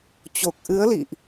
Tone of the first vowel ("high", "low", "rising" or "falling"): low